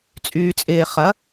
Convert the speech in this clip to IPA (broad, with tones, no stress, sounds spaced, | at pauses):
t͡sʼ yː˨ t͡sʼ ɪː˨ χ ɐ˨˦